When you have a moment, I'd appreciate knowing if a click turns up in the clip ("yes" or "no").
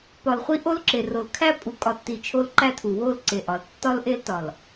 yes